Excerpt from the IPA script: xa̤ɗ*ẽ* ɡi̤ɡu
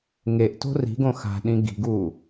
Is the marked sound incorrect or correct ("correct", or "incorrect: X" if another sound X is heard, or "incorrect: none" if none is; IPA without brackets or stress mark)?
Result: incorrect: ĩ